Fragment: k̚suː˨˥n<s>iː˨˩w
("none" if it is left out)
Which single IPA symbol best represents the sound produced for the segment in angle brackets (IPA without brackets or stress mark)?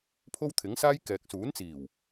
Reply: t͡s